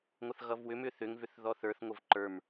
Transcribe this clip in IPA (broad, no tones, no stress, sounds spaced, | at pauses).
ŋʷ ʌ θ ɣ ʌ v w ʏ m ʏ θ ʏ ŋ v ʏ θ ð ɔ θ ə˞ θ ŋʷ ə v ǃ ə˞ m